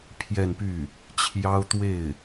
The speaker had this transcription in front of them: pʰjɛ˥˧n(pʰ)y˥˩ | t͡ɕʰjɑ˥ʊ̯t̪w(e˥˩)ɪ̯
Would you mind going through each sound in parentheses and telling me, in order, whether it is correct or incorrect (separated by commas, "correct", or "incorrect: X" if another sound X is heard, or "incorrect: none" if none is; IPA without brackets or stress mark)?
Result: incorrect: p, correct